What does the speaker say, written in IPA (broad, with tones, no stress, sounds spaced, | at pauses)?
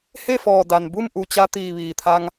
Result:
h e˥˨ f ɔː˧˩ d a˩ n b u˥˨ m ʔ u˧˩ t͡ɕ a˧ t̪ iː˧˩ ʋ iː˩ t̪ʰ a˧ ŋ